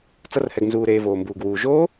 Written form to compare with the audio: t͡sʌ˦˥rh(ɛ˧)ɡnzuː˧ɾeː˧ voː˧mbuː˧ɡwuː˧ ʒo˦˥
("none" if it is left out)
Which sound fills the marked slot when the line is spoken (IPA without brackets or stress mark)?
ɛ˧